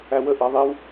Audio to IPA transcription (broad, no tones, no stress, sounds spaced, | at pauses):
æ w ə ʔ ɜ ðˤ i w